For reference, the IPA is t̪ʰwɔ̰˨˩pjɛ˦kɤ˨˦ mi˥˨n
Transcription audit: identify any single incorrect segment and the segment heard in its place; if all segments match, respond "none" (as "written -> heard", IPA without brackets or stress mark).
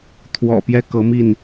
none